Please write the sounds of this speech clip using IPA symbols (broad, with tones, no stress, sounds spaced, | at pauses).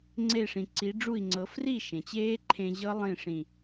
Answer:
ŋ͡ǀ e˧˩ ʂ ĩ˩ ǀ i˨˥ ɖ͡ʐ u˥˨ i̯ ŋ͡ǀ ɤ˨˥ f r i˥˨ ʃ ẽ˩ t͡ɕ eː˦˥ ǃʰ ẽ˧ ʑ ɤ˦˥ lˠ ĩ˥˨ ʂ ĩ˧˩